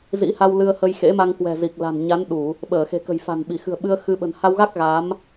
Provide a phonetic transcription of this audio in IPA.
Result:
z ḭ˧˥ h a˧ w l ɨ˧ ə̯ h ə˧ j x ḛ˧˥ m a˧ ŋ k w ɛ̤˨˩ z i˨˩ k̚ l a̤˨˩ n ɲ a˨˦ n ɗ u˧˩˨ | ɓ əː˧˩ x e̤˨˩ k ə̤˨˩ j f a̤˨˩ n ɓ i˧˩ x ɨ̤˨˩ ə̯ ɓ ɨ˧ ə̯ x ɨ˨˦ ɓ ə̤˨˩ n h a˧ w ɣ a˦˥ k̚ ɣ a˨˦ m

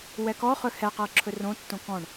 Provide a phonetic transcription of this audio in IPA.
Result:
w ɛ k ɔ χ ɵ h ɛ q ɤ ǁʰ ɵ r õ tː õ k ɔ̃ ɳ

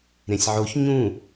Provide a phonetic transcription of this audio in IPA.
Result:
ɾ ẽ sʲ ʕ o ç ɲ ũ

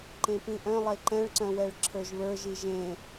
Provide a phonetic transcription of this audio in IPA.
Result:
ǃ ẽ p ĩ ʔ œ̃ lˠ e ǃ ɛ̃ ɭ ǀ œ̃ w ɛ ɭ ǁʰ ə˞ ʒ β ə˞ ʒ i ʒ ẽ

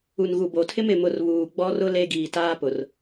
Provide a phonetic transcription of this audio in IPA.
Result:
u˨ n ɣ u˨ b o˨ tʰ ɪ˦ m ɪ˨ m ʊ˨ r β uː˨ ɡ͡b ɔ˦ r ʊ˦ l e˦ ɡ iː˨ t aː˦ p ʊ˨ r

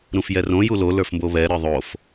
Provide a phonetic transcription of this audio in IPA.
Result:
ɾ ũ f j ɛ r õ j u l o l ə˞ f m b o β ɛ ɾ ə˞ ðˤ o f

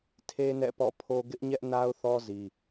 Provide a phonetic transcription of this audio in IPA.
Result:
tʰ e˦ n ɛ̰˦˨ p ɔ̰˦˨ pʰ o˦ ɡ ɪ˦ ʔ ɲ ɛ˦ ʔ n a˦ ʊ̯ θ ɔ˦ z i˦

